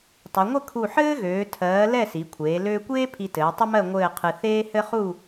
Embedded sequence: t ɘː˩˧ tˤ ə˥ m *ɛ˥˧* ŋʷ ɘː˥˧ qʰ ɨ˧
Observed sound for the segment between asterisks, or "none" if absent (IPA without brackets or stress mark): ɜ˥˧